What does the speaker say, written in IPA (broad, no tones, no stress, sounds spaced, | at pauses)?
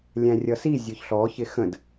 lʲ æ̃ rʲ ʌ s i zʲ ʊ ç ɬ ɔ ç ɪ x ə̃ d